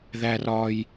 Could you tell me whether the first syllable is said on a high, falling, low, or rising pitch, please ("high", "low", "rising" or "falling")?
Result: high